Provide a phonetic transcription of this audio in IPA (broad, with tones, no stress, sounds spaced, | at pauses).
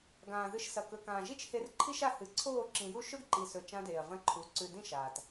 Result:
ɡ ãː˨ ð ɨ˧ ʃ s ɐ˨ k ɵ˨ k ãː˨ ʒ i˦ t͡ʃ h e˧ r ǃʰ i˦ ʃ a˧ h ɨ˨ ǀʰ oː˦˨ ǁ ĩ˨ j u˦ ʃ ɵ˦ ɡ ǃ i˨ s ɵ˨ t͡ʃ ã˧ d eː˨ ɐ̯ v ɐ̃˧ ǃʰ u˨˦ ǀ ʉ˨ d ĩ˦˨ ʃ aː˨ t